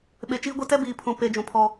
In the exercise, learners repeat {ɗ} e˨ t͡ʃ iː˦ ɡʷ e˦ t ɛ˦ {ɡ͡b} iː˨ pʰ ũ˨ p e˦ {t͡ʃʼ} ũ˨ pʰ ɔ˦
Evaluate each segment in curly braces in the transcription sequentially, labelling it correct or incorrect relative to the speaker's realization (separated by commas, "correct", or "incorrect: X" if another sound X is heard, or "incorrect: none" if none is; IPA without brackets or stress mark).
incorrect: ɓ, incorrect: b, incorrect: d͡ʒ